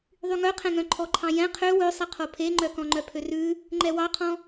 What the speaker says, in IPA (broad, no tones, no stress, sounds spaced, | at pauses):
ðˤ y ŋ œ qʰ ɛ̃ ŋ œ̃ ǃʰ ɔ ǃʰ ɑ̃ j ɛ̃ qʰ ø w ø sˤ ɛ qʰ o pʰ e ŋ͡ǃ œ k ɔ̃ ŋ͡ǃ œ pʰ ø r ʉ | ŋ͡ǃ ɛ w ɑ qʰ ɔ̃